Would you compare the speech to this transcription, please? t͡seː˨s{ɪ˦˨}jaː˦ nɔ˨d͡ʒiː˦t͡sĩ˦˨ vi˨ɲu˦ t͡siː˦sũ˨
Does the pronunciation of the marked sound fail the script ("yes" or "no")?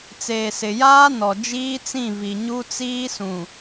yes